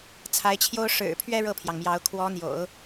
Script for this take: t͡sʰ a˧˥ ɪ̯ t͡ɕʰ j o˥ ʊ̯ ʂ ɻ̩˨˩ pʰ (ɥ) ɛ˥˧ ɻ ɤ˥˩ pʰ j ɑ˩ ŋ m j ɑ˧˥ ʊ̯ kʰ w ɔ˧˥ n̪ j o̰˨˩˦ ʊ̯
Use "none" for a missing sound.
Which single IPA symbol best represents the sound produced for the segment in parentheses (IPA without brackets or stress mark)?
ɥ